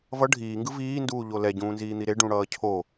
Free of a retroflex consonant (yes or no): no